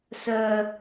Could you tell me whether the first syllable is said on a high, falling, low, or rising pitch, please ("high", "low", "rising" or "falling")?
high